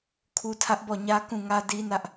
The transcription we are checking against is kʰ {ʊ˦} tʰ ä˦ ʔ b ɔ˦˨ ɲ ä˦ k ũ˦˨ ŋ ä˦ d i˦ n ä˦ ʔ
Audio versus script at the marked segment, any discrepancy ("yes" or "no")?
yes